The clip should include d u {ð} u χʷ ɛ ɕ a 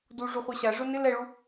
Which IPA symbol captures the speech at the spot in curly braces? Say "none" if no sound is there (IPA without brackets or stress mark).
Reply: ʐ